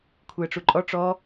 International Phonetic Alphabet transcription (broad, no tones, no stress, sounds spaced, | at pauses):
kʷʰ ɯ ə̯ ʈ͡ʂ u ǃʼ ɔ ʈ͡ʂ ɔ